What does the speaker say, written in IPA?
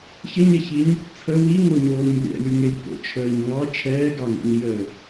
çəɲɛçiɲ | t͡sʰə wiŋoɲoːɲ lʲɛ̰lʲuŋej po̰t͡ʃʰəːɲ ŋɑ t͡ʃʰɛːɡɑŋḭɲ jə

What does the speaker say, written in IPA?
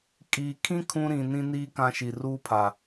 kʼiː˨kʰĩ˦ kʰũ˦ɾĩ˨ nĩ˦niː˦ kã˦ʃi˨ ruː˦pʰa˨

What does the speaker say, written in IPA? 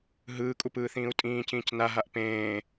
ɦɯːkʼupɯːθĩːu̯ tʼĩːcĩːc naɦaʔ pẽː

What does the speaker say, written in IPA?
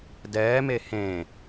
dɛːme hẽː

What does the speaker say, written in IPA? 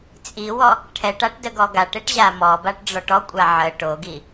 t͡sʼiwɔ | ʈʰɛʈaʈ dəɡɔɡaʈeʈ ʑamɔbaʈ ɖ͡ʐɔʈɔkʷʼa ʕə ʈoɡi

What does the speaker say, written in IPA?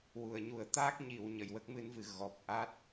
wu˨˩˨ə̯ɲu˨˩ə̯ t̪aː˦˥k̚ɲi˨˩˨w ɲə˨˩˨jwə˦˥k̚mɨ˧˥nvɨ˨˩ ɣɔ˨˩p̚ʔa˦˥t̚

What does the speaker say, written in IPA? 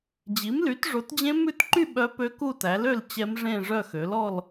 d͡ʑi˩˥mly˩˥t ʐo˩˥td͡ʑẽ˦˥mʉ˦˥tǃy˥˧ ɓœ˦˥ pø˦˥ku˥˧tæ˩˥lø˥˧l t͡ɕɛ˦˥mʐẽ˥˧ʐœ˥˧ xø˩˥lɔ˥˧l

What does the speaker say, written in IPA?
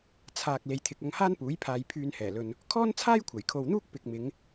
t͡sʰaː˨k̚ le˨jt̪ʰɪ˨k̚ ɐ˧ŋhaː˥npuː˨˥jpʰaː˨j pʰyː˧nhɛː˨˩ lɵ˨n | kʰɔː˥nt͡sʰaː˥jkʷʰɐ˨˩j kʰo˨wn̪uː˥k̚pɪ˨k̚mɪ˨˧ŋ

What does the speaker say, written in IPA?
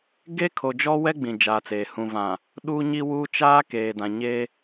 ɡe˦ kʰo˨d͡ʒɔ˦wɛ˦ ɡ͡bĩ˨d͡ʒaː˨t͡seː˨ hũ˨vã˨ | ɗuː˦ɲi˦wuː˦ t͡ʃaː˦keː˨dã˨ ɲe˦

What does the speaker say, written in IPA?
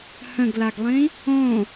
hə̃ɡlaɡlˠĩ | õ

